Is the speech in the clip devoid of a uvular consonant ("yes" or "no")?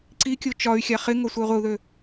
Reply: no